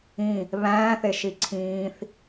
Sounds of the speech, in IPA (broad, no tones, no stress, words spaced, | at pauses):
ĩ | βæ̃ːθeʃi ǀʰĩːθ